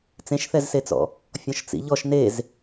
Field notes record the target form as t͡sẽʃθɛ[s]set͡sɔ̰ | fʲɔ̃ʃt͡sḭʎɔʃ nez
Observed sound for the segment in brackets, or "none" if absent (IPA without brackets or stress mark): z